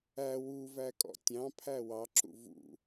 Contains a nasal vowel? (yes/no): yes